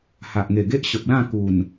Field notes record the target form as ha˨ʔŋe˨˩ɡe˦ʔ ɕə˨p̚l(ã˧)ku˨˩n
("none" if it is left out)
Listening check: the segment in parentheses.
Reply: ã˥˧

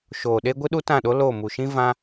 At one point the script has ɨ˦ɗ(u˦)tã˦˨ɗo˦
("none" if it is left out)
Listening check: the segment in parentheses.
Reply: u˦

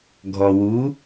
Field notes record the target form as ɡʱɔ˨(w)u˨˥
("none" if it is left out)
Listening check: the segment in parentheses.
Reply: w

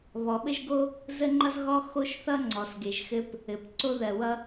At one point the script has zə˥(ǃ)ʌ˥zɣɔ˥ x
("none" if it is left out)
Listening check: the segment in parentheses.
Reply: ŋ͡ǃ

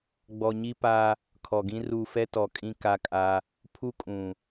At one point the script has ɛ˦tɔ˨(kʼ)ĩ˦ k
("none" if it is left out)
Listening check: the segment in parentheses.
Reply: kʼ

